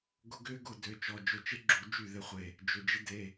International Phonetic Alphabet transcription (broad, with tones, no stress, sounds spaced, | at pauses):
ɡ ʊ˦ ɡ ʏː˦ ɡ ʊ˥˩ d ø˧˩˧ t͡ʃ ɔ˩˧˩ d͡ʒ ʊ˧˩ t͡ʃ ɪ˦ ɡ͡ǁ u˧˩˧ d͡ʒ y˥˩ ð ɪ˦ χʷ e˧˩ | d͡ʒ ʏ˩˧˩ d͡ʒ ɪ˦ d e˩˧˩